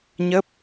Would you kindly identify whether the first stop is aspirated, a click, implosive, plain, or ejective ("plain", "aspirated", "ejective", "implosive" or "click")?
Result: plain